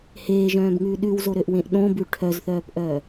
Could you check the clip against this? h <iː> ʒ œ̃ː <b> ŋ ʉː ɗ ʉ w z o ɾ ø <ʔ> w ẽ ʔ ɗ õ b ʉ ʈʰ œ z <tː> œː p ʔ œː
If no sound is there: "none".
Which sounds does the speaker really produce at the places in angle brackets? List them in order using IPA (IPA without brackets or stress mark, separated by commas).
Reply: eː, b, ʔ, θ